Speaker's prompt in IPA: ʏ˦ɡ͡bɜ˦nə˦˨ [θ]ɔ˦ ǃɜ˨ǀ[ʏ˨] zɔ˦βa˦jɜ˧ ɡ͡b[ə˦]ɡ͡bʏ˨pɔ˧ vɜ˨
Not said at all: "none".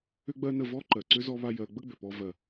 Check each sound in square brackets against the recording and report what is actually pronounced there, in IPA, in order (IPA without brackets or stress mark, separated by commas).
v, ʏ˦, ə˦